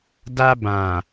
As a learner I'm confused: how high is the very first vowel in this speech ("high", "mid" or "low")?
low